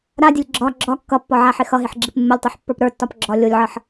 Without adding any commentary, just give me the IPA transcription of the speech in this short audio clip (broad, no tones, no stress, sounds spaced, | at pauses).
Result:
ɾ a dʲ ə lʲ ɡ͡ǁ ɒ ɡ͡ǁ ɒ kː ʌ pː ɒ ʕ a ħ ɪ x ʌ ɦ ɪ ħ ɡ͡ǁ ɪ p mː ə lʲ tˤ o ħ pː ə˞ p ɾ ə˞ tː ɒ p ɡ͡ǁ ɒ lʲ o lʲ ʕ ʌ ħ